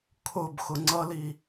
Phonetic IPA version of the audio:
kʰʊb xʊŋ͡ǀʌli

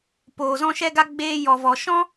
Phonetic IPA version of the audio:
poː˨zɔ̃˧ʃɛ˧ɡa˧ ɡ͡beː˧ jɔ˨vɔ˨ ʃɔ̃˦

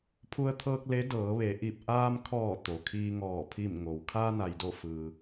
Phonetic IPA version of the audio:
pʰu˧ə̯t̪ʰɤː˧k̚ le˧˥ dɤː˩˧ʋe˩˧ʔi˧˩p̚ ʔaː˧mkʰɔː˧˩ t̪o˩kʰiː˧ŋɔː˧˩ pʰi˧˩mŋo˩w kʰaː˧na˩jdo˧˩ fɯː˩

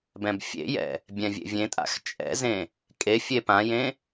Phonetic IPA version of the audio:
bɛ̃bfʲḛjɛ̰ | bʲɛ̃vʲḛvʲẽtʼa̰x t͡ʃʼɛ̰zẽ | kʼefʲe pãjẽ

